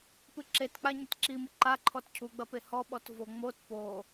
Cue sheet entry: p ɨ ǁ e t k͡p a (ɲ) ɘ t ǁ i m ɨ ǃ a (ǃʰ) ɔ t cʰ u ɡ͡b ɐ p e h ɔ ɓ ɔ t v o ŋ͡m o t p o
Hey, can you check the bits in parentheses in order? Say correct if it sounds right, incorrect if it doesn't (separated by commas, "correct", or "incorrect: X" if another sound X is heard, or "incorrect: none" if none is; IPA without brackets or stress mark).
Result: correct, correct